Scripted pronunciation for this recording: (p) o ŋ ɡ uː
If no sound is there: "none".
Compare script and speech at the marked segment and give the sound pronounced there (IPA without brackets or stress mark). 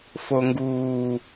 f